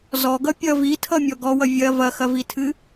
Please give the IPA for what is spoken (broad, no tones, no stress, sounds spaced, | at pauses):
z ɔ ɡ ʌ pʲ ʌ v i tʰ ʌ mʲ ɔ ɡ ɔ w ʌ vʲ ɐ v ɐ x ɐ v i tʰ ɨ